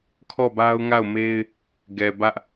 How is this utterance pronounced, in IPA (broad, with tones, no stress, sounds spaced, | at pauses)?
kʰ ɔ˦˨ b a˦ ʊ̯ ŋ a˦˨ ʊ̯ m e˦ ɪ̯ | ɡ ɛ˨ b ä˦ ʔ